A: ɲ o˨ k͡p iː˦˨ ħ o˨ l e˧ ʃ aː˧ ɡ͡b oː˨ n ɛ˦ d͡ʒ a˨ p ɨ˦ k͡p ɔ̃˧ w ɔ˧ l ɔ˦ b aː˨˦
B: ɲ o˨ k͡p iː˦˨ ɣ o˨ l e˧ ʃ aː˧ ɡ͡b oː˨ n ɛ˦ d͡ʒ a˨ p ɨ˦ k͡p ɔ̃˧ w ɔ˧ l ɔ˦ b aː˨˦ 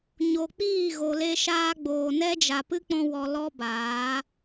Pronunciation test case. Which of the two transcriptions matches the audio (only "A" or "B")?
B